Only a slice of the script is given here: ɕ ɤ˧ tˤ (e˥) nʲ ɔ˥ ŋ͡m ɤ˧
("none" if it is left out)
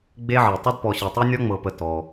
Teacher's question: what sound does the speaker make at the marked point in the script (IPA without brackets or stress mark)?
e˥